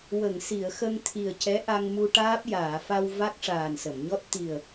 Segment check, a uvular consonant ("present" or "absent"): absent